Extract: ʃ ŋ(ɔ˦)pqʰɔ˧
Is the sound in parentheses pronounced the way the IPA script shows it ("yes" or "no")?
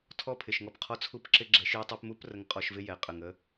no